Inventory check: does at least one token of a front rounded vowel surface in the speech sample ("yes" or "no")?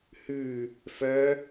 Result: yes